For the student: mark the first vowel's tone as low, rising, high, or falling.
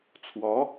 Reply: rising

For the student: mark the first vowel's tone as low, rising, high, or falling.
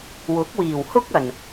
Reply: rising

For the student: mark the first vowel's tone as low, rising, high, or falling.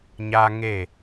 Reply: high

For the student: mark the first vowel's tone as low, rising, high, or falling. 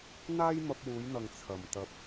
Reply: high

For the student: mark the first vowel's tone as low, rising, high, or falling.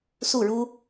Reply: falling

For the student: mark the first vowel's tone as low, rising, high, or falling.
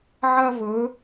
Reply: high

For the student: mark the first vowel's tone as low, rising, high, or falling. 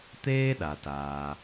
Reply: high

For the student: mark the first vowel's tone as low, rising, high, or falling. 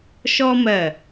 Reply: high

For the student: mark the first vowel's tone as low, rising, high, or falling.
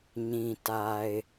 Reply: low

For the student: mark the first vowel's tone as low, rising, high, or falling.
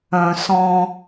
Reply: low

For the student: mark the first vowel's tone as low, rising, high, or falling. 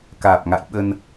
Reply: low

